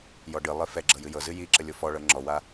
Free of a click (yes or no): no